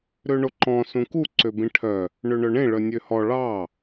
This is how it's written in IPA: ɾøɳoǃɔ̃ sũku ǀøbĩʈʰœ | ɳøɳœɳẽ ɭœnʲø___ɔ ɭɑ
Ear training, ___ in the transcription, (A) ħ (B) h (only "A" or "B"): B